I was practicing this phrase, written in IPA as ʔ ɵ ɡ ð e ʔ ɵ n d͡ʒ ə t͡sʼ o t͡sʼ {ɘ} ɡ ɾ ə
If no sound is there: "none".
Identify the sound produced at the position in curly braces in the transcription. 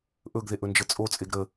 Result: e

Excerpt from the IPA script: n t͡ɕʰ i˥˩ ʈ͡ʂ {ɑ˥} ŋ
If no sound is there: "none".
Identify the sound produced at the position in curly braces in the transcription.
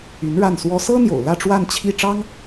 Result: ɑ˥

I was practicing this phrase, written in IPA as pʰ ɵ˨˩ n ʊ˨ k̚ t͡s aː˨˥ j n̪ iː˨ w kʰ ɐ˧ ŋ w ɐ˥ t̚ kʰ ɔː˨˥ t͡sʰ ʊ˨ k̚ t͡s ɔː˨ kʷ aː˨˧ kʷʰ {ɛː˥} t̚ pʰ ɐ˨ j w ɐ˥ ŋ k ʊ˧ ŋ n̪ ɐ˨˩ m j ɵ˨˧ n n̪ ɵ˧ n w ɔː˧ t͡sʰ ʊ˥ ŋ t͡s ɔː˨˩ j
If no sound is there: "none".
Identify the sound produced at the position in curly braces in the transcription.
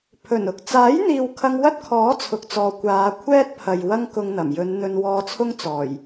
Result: ɛː˥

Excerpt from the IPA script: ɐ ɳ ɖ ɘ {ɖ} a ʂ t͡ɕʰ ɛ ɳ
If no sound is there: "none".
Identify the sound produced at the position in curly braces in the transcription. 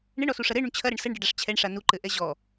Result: ɖ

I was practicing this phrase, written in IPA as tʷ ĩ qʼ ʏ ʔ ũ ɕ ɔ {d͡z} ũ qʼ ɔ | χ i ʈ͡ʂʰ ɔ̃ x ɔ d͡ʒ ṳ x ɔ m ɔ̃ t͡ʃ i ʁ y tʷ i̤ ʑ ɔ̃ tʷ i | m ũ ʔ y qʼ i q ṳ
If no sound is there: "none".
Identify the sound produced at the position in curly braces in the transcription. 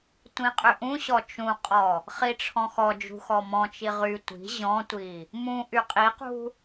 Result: t͡ʃ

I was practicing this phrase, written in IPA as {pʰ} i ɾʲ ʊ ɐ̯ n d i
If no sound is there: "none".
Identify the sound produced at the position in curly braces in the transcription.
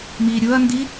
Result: m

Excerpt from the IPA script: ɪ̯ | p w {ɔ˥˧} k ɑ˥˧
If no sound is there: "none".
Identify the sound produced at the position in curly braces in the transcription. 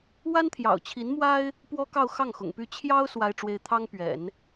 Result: ɔ˥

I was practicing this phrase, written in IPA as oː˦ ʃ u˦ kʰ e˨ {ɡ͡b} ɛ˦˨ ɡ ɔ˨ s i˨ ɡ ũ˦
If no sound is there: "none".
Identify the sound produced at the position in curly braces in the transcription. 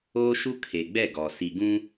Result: ɡ͡b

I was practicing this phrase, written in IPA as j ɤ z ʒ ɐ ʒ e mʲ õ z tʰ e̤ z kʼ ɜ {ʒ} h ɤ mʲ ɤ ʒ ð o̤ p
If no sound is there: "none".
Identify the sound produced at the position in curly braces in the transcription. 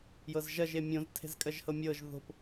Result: ʒ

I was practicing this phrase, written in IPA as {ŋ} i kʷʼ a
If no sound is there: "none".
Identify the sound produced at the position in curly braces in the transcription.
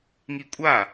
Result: ŋ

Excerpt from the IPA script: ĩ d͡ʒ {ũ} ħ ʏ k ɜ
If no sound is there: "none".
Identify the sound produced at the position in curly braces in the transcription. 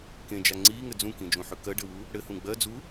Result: ũ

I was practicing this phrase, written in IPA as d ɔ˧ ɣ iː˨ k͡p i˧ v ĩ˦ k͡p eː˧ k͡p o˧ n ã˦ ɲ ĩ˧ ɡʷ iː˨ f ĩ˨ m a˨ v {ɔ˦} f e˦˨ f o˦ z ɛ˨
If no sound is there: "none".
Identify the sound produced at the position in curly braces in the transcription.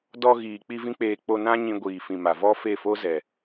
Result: ɔ˦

